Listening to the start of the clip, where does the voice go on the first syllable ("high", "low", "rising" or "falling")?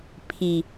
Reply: low